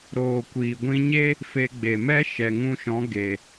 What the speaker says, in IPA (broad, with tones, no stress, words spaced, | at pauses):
ɾoː˨kʷiː˨ɡʷĩ˧ɲe˦ | fe˧ɡ͡be˨mɛ˦ ʃɛ˨ŋũ˧ʃɔ̃˨˦ ɡe˨